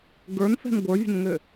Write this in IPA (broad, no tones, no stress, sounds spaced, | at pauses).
ɡ ə˞ n f ɛ̤ n ɡʷ ə˞ vʲ ə̤ n ŋ ø